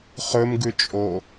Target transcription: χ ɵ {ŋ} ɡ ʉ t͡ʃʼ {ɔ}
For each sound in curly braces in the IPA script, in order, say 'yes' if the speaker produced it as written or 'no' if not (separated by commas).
no, no